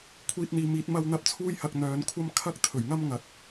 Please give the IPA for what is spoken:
kʷʰ iː˧ t̚ n̪ iː˨˧ m iː˨˥ t̚ m ɐ˧ w n̪ ɐ˧ p̚ t͡sʰ uː˥ j h ɐ˧ k̚ n̪ œː˨˧ n kʷʰ ɐ˥ m kʰ ɐ˥ k̚ t̪ʰ ɵ˨˩ ɥ ŋ ɐ˥ m ŋ ɐ˨ t̚

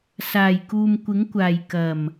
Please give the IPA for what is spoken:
s aː˨˩ j k uː˨ m kʷ ɪ˨˥ ŋ kʷ aː˨˩ j k ɐ˨˩ m

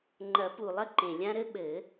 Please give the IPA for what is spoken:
ŋ͡ǃ ɐ˨˩˦ p u˨˩ lˠ ɐ˥ ǃ ẽ˨˩ lʲ ã˥ ɾ ɘ˥ ɓ ɘ˨˩˦

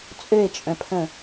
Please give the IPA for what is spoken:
t͡sʼ ø e̯ t͡ʃʼ œ̃ pʰ ə̃

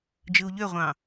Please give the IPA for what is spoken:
d͡ʒ ɯ u̯ ʎ ø ʁʷ ɑ̃

